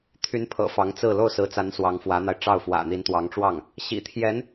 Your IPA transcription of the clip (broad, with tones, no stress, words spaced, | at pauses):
t̪ʰy˧˥npʰɤ̰˨˩ fɑ˧˥ŋt͡sɹ̩˥˧ lo˥˩ʊ̯sɹ̩˧˥t͡sa˧˥n swɑ˧˥ŋfwä˧˥n̪a˧ɪ̯ʈ͡ʂɑ˥˩ʊ̯ fwä̰˨˩n̪i˧˥nt̪wɑ˧˥ŋʈ͡ʂwɑ˥˩ŋ | ɕḭ˨˩t̪ʰjɛ˧˥n